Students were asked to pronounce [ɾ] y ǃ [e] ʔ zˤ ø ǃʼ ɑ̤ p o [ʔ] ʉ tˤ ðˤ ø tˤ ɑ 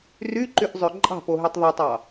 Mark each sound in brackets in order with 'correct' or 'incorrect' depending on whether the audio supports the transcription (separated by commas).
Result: incorrect, incorrect, incorrect